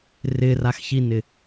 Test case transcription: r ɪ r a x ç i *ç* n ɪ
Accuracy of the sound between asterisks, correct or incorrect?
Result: incorrect